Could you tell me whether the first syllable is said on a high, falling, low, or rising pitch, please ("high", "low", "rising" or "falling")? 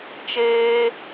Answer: high